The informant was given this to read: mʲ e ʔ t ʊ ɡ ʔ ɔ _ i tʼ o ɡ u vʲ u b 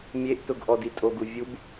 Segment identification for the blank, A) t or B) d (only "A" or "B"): B